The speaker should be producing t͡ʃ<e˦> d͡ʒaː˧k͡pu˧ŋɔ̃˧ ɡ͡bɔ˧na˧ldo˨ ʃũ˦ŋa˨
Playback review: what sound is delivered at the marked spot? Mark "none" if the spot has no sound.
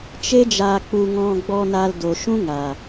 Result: e˦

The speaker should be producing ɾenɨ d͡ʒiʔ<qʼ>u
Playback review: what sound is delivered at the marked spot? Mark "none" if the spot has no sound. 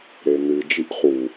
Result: χ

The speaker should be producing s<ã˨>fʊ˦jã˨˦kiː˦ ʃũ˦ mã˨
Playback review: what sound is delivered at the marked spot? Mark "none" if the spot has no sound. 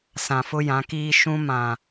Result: ã˨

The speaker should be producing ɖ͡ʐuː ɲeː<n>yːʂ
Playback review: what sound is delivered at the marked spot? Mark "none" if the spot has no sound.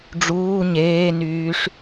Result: n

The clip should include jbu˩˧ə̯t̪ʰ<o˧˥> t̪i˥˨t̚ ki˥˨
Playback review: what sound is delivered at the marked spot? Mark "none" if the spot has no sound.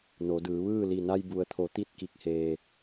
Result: o˩˧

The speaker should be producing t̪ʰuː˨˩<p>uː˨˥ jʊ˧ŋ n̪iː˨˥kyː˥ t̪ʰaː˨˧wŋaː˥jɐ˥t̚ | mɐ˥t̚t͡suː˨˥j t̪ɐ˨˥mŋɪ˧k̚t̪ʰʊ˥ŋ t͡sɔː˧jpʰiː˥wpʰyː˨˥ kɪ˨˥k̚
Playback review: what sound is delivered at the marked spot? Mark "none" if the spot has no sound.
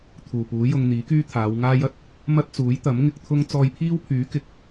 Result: p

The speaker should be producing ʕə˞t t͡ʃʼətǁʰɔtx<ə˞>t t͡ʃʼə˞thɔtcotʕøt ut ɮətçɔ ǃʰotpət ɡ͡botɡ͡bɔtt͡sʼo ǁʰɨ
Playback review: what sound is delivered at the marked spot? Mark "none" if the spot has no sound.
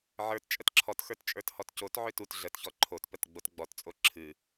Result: ə˞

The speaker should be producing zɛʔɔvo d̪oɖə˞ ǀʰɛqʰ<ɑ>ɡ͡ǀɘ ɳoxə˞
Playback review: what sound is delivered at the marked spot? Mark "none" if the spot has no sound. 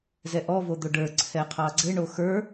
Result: ɑ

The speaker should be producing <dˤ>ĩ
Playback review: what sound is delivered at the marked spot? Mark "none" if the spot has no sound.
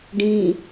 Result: ɖ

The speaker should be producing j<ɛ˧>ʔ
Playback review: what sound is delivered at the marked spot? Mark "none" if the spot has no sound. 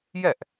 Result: ɛ˥˩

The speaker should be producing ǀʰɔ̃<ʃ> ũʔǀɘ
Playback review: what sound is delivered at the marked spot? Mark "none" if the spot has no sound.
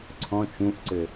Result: t͡ʃ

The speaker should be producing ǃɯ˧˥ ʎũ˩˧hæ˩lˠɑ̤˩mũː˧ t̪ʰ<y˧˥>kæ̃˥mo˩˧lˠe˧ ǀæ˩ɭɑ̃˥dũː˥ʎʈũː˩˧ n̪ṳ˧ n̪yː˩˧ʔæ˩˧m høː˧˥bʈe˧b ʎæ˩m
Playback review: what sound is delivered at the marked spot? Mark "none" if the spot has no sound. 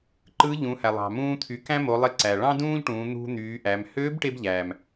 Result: y˩˧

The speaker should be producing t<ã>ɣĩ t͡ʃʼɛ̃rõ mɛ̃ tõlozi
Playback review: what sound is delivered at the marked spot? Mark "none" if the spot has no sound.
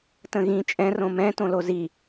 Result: ə̃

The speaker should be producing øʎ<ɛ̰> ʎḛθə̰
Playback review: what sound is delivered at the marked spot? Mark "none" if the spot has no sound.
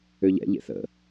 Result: ɛ̰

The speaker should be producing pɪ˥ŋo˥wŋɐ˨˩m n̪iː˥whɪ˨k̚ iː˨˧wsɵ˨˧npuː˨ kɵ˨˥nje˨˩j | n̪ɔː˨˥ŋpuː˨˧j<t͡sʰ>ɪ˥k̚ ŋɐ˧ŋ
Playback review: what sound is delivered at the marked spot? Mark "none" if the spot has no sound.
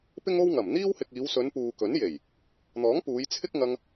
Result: t͡sʰ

